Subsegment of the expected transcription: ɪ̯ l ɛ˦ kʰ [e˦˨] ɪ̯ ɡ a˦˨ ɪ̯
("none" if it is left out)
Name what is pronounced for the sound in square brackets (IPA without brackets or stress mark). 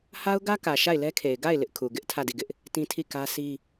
e˨